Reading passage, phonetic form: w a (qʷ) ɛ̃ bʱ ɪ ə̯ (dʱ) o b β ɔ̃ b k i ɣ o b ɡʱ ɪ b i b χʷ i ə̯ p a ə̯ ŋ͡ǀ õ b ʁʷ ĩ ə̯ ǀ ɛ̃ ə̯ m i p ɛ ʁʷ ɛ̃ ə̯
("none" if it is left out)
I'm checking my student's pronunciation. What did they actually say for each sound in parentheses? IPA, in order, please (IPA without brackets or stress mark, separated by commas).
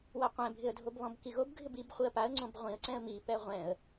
qʷ, dʱ